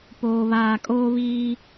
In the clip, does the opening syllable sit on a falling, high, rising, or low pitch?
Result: low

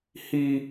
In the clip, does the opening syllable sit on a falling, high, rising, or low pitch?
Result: high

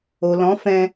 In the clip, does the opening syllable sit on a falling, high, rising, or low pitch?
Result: low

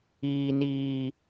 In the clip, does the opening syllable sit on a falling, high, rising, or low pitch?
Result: high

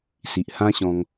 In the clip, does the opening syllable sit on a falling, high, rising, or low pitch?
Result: low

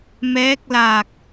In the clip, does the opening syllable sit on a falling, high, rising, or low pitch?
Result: rising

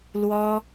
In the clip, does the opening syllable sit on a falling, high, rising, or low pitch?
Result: high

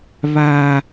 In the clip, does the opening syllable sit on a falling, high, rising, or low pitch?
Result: low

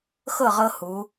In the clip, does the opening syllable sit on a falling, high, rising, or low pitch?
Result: falling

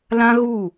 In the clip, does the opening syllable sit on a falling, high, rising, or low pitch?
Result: high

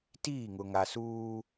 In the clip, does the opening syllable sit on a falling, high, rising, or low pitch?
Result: falling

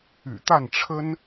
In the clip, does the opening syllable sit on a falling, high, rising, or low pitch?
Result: low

